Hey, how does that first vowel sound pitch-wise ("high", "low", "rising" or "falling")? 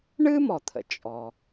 high